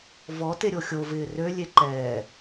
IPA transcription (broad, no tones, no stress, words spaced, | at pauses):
vɔ teɾʲoxʲo vɪːrø lʲeǃɛː